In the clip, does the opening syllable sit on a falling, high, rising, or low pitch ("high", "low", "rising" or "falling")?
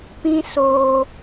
high